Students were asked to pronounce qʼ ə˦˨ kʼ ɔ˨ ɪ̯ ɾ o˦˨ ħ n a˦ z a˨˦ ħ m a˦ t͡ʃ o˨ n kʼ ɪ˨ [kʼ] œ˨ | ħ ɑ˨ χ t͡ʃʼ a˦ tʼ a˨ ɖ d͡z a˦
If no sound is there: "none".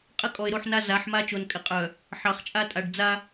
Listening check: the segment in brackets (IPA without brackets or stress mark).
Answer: qʼ